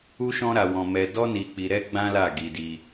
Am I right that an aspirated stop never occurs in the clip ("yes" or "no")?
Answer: yes